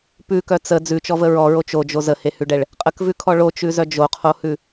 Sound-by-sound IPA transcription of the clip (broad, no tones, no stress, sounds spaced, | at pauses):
p ʉ k œ t͡s ə d͡z ʉ t͡ʃ ɔ v ə ɹ ɔ ɹ o t͡ʃ o d͡ʒ o z ə h e h ʉ ɖ ɛ ɭ | qʼ ə k v ʉ kʰ ɔ ɭ o t͡ʃ ʉ z œ d͡ʒ o qʰ o h ʉ